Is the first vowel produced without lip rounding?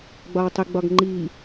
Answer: no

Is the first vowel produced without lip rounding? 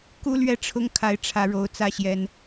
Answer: no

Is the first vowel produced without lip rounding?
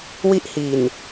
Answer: yes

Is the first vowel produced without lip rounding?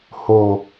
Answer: no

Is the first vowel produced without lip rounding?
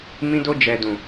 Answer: yes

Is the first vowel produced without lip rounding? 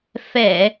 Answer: yes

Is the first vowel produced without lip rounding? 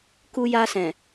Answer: no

